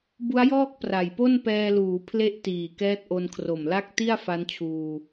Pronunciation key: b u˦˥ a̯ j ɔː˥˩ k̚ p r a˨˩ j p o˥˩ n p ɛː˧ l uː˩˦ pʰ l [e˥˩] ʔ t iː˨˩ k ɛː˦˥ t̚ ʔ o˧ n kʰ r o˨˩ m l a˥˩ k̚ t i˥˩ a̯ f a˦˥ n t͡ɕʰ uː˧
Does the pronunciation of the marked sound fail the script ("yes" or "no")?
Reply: no